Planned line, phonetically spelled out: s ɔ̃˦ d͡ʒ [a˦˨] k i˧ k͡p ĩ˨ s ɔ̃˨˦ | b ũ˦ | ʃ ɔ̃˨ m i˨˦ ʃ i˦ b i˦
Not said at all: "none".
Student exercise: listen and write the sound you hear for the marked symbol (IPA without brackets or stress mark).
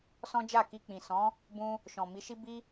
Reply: a˦˨